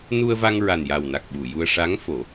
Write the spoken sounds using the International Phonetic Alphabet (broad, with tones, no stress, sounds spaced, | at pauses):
n u˧ ə̯ v a˧ ŋ ɹ a˨˩ n j a˨˩ w n a˨˩ k̚ ɓ u˨˩˨ j u˧ ə̯ ʂ a˧˥ ŋ f o˨˩˦